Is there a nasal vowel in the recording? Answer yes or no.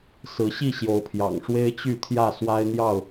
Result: no